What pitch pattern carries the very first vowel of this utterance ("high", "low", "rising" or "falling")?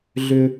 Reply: high